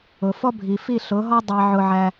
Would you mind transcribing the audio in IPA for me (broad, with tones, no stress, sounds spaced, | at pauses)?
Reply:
ʊ˨ f ɔ˦ bʱ i˨ f i˦˨ ɬ ʊ˨˦ ɦ ɔ˦ dˤ ɑ˧ ʕ ʊ˧ ʕ æ˧